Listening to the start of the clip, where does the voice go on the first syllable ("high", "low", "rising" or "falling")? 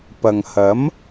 low